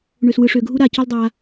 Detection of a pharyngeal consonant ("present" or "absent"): absent